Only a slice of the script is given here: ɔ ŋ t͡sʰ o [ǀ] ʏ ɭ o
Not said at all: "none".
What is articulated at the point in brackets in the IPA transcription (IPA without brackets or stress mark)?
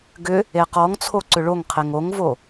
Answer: ǀ